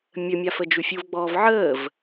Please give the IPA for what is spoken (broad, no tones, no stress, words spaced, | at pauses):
mʲəmʲa fəd͡ʒufʲuvɡ͡bɔːv ʕəːv